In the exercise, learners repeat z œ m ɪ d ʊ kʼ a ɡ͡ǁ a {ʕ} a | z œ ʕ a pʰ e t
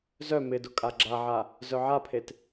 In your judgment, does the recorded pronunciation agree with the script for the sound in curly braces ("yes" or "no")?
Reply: yes